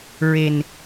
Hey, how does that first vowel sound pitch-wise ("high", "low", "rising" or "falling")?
low